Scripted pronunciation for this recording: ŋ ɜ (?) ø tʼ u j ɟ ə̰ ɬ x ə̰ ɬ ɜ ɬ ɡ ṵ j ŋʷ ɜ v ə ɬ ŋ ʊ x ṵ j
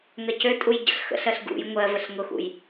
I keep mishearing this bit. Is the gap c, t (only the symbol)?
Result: c